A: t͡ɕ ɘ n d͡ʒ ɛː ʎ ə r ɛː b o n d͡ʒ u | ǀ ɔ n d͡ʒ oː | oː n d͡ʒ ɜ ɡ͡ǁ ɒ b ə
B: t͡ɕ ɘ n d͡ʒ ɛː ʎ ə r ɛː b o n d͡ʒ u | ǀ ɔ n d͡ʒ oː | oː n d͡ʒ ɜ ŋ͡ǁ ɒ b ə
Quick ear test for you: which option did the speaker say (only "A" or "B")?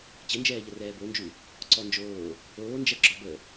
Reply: A